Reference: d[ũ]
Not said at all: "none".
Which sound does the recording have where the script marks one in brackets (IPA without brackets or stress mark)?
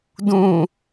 ũ